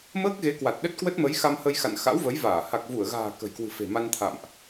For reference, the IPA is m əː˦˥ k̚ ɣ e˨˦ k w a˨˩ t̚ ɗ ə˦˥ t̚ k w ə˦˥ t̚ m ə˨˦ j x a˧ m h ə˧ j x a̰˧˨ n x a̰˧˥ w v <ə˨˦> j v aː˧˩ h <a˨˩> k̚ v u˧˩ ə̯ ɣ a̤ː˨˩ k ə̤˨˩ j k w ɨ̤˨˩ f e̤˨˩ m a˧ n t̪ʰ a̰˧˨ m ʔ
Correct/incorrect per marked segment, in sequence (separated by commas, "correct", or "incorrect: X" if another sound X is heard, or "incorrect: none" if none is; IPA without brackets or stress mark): correct, correct